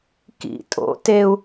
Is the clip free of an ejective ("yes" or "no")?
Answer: no